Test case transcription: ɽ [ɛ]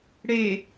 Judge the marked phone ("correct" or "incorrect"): incorrect